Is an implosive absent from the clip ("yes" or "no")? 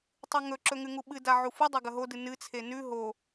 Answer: no